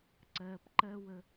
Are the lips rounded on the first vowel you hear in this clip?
no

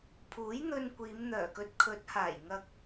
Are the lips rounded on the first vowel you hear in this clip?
yes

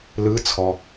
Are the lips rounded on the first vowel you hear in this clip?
no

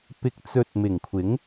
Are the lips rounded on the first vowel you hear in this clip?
no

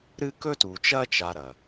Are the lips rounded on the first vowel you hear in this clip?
no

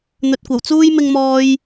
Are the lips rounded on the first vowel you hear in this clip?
yes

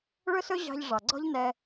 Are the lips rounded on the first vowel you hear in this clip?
yes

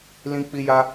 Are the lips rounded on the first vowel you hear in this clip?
no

